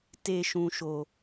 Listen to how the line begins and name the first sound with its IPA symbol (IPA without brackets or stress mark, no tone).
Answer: t